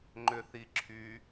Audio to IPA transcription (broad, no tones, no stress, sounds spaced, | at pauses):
ŋ͡ǃ ʏ θ i ǁʰ y